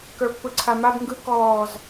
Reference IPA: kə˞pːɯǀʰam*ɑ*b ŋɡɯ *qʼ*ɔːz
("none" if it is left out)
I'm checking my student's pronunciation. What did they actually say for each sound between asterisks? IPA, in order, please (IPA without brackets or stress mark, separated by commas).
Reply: a, k